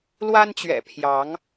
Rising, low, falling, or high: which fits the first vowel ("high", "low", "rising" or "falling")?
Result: high